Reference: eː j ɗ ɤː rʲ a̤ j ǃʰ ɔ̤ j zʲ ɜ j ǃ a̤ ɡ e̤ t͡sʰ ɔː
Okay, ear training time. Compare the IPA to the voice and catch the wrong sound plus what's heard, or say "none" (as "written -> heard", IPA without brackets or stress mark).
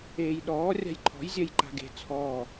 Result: ɤː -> ɔː